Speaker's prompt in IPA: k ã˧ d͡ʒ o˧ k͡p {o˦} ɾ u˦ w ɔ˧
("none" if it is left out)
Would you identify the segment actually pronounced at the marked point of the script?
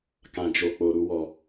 o˧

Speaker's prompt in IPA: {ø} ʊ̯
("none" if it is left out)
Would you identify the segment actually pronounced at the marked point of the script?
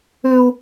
ø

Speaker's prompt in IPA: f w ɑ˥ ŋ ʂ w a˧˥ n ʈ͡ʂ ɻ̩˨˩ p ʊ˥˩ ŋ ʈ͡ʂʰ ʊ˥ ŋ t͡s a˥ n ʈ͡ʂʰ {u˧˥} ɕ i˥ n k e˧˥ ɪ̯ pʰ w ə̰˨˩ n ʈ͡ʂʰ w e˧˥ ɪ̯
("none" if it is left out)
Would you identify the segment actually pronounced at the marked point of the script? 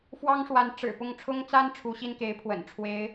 u˧˥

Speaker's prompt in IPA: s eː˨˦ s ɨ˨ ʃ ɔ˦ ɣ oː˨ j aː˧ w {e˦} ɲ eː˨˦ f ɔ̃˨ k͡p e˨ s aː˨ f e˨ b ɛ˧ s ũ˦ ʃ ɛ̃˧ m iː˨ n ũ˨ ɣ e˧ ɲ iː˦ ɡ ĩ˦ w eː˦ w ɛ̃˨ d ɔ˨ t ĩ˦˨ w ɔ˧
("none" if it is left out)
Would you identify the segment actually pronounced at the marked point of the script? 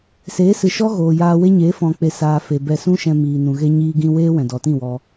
e˦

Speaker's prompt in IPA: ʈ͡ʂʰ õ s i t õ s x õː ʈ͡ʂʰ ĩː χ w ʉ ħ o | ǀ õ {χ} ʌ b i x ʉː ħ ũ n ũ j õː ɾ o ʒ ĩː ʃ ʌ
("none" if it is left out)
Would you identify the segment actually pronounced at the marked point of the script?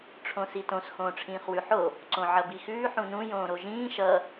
ʕ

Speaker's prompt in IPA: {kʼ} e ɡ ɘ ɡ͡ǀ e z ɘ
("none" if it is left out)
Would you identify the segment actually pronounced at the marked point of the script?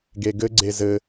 ɡ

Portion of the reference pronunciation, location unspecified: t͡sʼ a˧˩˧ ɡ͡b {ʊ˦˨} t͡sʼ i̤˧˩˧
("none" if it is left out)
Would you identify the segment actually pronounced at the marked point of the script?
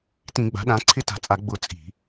ʊ˦˨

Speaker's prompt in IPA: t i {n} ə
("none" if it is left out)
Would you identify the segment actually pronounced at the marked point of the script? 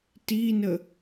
n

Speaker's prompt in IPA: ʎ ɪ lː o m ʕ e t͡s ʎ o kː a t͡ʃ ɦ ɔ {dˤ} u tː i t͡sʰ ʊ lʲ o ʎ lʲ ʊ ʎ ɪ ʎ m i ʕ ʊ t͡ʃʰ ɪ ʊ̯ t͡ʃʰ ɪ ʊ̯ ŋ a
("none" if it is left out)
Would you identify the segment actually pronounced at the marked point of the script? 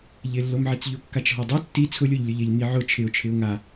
dˤ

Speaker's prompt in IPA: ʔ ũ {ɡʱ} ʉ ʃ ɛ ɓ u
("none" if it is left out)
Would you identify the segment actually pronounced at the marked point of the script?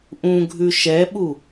ɡʱ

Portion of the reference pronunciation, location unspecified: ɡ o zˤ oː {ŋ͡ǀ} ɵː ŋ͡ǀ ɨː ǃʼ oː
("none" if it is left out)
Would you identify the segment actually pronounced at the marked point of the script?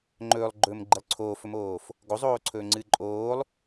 ǀʰ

